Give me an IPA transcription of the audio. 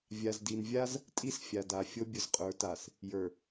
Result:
vʲa˨zdi˨nvʲa˦z | tʼi˦sfʲa˨da˨ fʲo˦bʲʊ˨zqʼə˞˨˦ta˨s | jə˞˨

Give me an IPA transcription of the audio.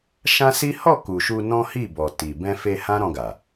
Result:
ʃã˦si˦ hɔ˦˨ ku˨ʃu˧nɔ̃˦ hi˦˨bɔ˨ ti˨ bɛ̃˧fe˧ hã˦ɾɔ̃˧ɡa˨

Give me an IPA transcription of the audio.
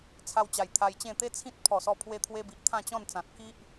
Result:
t͡sʰa˧wt͡ɕa˨˩j t̪ʰa˧jt͡ɕẽ˥˧ t̪e˦ t͡sʰĩ˦t̚ pʰɔ˨˩sɔ˧ pʰwe˧t̪ʰwe˧bi˨ʔ t̪ʰã˥˧t͡ɕɔ̃˥˧nt͡sã˨t̚ ki˦ʔ

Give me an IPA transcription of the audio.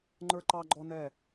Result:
ŋ͡ǃə˞˦ǃɑ˦ɡ͡ǃɔ˦nɛ˦˨

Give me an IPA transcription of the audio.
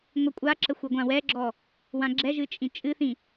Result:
ŋʷɨkʷʼaǁə xʷeɡʷãwɛɡ͡ǁɔ | wãɡ͡ǁɛʒɨ t͡ʃʼĩt͡ʃʼɨθĩ

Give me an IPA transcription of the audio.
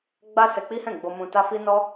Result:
ɡ͡ba˦sɛ˧k͡pi˦hɛ̃˦˨ ɡ͡bo˧mũ˧ta˦fi˦ nɔ˦

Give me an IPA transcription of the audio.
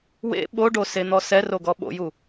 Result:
wḛ ɓoɖosen̪ɔ sɛroɡɔ ɓo̰ju

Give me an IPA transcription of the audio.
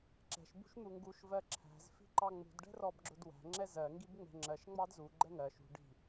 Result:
ǁɛ̤ʃ bṳʃn̪uŋɡuʃ vɜǁʰæ̤z fi̤ǃɑŋ͡mṳd ɖɛ̤rɔbɡ͡ǁʊdwæ̤ ŋ͡ǁɛzɜ ŋɡibŋ͡mɛ̤ŋ͡ǁɜʃ ŋ͡mɑdzu ɡ͡ǃɛŋɜ ʃṳ ɖi̤

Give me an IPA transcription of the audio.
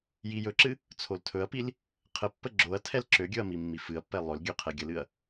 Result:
jijɵǁɨ | t͡sʰoltʰɵɐ̯pil | qʰəpːə ɡ͡ǁoɐ̯tʰɛl ǁøɡʲɵɐ̯ mimːifɨɐ̯pːɛ lˠɵlɡʲø qʰɛɡʲəlɨɐ̯

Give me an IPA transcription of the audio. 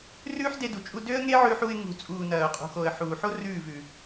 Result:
rʉː˦ħde˧du˨t͡ʃʼu˧ dø˦ə̯ŋe˦ʕʉ˧ħu˧ɪ̯ ŋṳ˨t͡sʼuː˨ nɐː˨ʊ̯qʼṳ˨xo˨ə̯ ħuː˨ħo˦ rʉː˦˨vʉ˨

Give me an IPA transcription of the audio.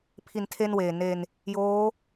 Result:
pʰi˩˦n tʰe˥˩nweː˨˩ ne˧n | joː˦˥

